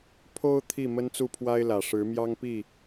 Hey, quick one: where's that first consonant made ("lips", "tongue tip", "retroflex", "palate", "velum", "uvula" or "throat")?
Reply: lips